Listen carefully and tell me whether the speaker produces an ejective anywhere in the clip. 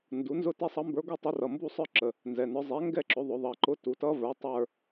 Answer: no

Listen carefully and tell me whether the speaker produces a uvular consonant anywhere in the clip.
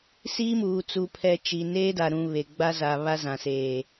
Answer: no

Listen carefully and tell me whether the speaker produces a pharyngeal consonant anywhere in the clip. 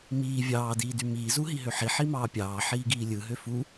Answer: yes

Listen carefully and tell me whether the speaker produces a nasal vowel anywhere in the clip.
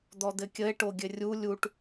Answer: no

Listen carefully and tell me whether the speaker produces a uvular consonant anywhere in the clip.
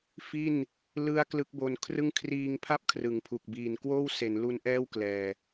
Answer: no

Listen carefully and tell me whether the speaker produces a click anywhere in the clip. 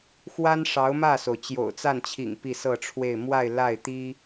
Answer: no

